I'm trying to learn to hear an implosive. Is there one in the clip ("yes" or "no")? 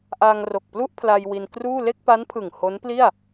no